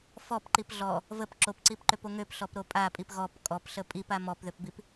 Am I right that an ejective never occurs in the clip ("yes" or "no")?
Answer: no